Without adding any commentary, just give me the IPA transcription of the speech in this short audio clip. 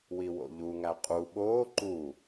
wiwo̰ʎuŋæ qʼu ɓoː ǃu

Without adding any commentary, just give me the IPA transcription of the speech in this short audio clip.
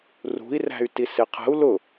rṳi̯ ræ̤y̯tisɪqʰə̤u̯ lʊ

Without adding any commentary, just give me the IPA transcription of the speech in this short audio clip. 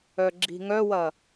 œɡ͡ǁi̤ŋœwɐ

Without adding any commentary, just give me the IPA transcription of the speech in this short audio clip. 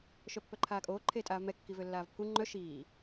ʃœpːœǃʰaːkʼoː ǃʰeːtʼaːvmɛ kːivølːaːvpʰu ŋ͡ǃœ ʃiː

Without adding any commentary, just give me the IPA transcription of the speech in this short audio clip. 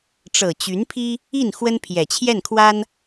ʈ͡ʂɤ˨˩ t͡ɕy˧˥npʰi˥ | i˥˩n xwə˥npʰjɛ˨˩ t͡ɕʰjɛ˥˩nkʰwa˥n

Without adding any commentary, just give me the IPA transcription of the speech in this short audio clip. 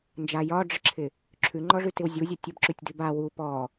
nd͡ʒa jɒɖ͡ʐəǁʰɪ | ǁʰʉŋ͡ǃɔʐʉtɪw zʲuzʲə tʲəbǁʉtʲdʉb a wu pɔ

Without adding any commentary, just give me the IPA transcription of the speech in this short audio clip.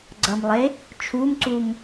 ɡ͡ǀʌmlˠe | t͡ʃʰumǀum

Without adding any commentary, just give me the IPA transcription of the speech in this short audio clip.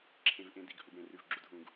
ǁʰẽ˩vʔẽ˩ di˩ɡhu˩ɡ ɽẽ˩rʉ˩vɡ͡ǁu˩d ɦũ˩ɡ

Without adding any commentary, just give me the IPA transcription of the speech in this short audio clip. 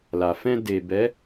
la˨ fɛ̃˧de˨bɛ˨˦

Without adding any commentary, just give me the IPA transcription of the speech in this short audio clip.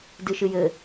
dɨʃɨjɘ

